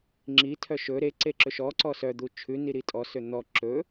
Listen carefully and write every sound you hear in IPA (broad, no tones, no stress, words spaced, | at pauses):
ŋ͡ǁitʰœ ʃɵ ɾe ǀeǁɵʃɔǀɔ sœd̪u t͡ʃʰʉni ɾitʼɔsø n̪ɔ ǁɵ